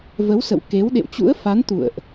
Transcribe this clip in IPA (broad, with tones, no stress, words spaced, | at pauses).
və˨˦wsə̰˧˨w ke˨˦w ɗḛ˧˨wt͡ɕṵ˧˥ə̯fa˨˦n t̪ṵ˧˨ə̯ʔ